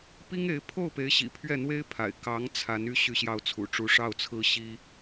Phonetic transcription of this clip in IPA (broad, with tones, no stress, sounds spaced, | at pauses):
p i˥ ŋ e˧˥ ɪ̯ pʰ o˥˩ ʊ̯ p e˧˥ ɪ̯ ɕ ḭ˨˩ pʰ ɥ ɛ˥˩ n̪ w e˥ ɪ̯ pʰ a̰˨˩ ɪ̯ k ɑ˧˥ ŋ t͡sʰ a˧˥ n y˥ ɕ y˥˧ ɕ j ɑ˥˩ ʊ̯ t͡sʰ ṵ˨˩ ʈ͡ʂ u˧˥ ʂ ɑ˥˩ ʊ̯ t͡sʰ ɹ̩˥ ɕ i˥